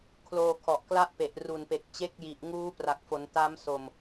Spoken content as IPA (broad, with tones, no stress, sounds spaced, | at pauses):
kʰ l oː˧ kʰ ɔ˨˩ ʔ k l a˥˩ ʔ p e˨˩ ʔ r u˨˩ n p e˨˩ k̚ t͡ɕ e˦˥ k̚ j i˨˩ ʔ ŋ uː˦˥ p r a˨˩ k̚ f o˩˦ n t a˦˥ m s o˨˩ m